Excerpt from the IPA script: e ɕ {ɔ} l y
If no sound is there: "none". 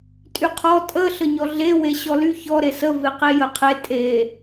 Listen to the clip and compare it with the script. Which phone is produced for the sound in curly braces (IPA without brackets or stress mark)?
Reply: ɔ